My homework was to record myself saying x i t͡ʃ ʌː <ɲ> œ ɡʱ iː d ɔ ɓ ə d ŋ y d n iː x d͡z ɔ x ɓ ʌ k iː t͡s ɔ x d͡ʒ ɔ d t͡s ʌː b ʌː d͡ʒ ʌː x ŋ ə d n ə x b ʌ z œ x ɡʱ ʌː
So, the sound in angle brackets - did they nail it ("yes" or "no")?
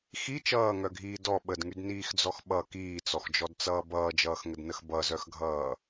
no